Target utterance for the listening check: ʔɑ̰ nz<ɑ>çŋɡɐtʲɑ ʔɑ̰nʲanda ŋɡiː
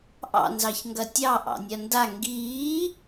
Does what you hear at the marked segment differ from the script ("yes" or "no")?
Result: no